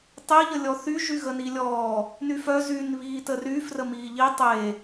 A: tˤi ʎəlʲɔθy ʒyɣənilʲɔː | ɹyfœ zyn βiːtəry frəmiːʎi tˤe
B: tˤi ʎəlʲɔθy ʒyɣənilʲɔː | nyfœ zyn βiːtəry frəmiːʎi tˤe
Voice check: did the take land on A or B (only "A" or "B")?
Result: B